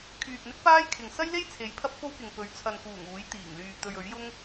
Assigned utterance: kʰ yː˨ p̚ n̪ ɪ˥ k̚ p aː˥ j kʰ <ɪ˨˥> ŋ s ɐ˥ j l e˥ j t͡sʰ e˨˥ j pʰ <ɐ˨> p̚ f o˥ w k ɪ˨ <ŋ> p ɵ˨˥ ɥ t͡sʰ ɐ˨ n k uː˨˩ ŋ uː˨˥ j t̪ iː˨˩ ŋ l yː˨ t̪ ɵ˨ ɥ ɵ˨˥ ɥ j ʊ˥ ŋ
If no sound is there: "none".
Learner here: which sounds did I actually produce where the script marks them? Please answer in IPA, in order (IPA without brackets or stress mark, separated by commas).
ɪ˨, ɐ˥, ŋ